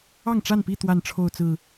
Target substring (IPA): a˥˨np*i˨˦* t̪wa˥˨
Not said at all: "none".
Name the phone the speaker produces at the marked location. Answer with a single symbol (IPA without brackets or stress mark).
i˥˨